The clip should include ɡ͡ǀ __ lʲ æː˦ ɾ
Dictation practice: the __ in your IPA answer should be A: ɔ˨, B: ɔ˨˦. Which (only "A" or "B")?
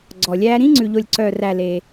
A